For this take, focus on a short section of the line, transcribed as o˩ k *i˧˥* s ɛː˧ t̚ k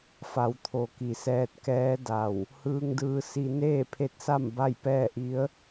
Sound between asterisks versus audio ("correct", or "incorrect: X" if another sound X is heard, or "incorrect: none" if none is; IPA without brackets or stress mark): incorrect: i˩